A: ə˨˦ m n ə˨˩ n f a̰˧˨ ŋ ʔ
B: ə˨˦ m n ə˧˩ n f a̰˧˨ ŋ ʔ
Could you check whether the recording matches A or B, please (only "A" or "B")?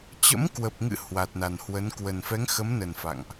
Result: A